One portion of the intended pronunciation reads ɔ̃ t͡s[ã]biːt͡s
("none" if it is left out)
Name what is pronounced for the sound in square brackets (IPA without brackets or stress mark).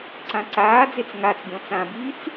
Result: ã